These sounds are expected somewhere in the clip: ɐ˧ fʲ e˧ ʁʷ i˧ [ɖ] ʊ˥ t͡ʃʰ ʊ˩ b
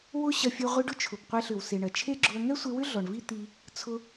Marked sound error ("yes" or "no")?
no